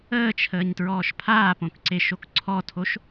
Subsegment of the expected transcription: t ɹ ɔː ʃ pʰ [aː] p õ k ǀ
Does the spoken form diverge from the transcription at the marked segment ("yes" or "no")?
no